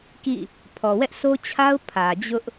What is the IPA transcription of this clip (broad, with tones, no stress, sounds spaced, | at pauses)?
k ḭ˦˨ | pʰ ɔ˨ w ɛ˦ ʔ s o˦ t͡ɕʰ a˦ ʊ̯ pʰ ä˨ d͡ʑ ʊ˦ ʔ